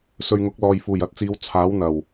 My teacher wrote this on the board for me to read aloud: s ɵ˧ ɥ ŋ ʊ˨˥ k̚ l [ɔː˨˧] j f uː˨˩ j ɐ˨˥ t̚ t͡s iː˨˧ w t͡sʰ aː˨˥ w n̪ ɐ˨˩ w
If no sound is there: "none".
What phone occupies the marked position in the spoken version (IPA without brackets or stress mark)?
ɔː˨